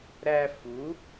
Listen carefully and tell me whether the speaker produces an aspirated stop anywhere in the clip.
no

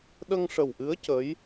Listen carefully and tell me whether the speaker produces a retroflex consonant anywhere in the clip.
yes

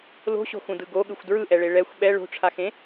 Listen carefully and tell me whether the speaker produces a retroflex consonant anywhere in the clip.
yes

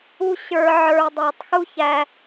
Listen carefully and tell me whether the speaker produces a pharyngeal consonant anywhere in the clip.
yes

